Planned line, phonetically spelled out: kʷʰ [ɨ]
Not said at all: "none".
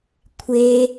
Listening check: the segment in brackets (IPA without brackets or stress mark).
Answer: e